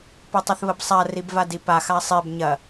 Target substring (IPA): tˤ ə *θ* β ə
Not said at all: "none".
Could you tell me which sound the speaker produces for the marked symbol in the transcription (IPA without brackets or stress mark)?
θ